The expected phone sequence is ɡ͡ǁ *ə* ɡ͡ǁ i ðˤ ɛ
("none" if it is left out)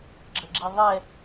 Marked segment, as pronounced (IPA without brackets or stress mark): ə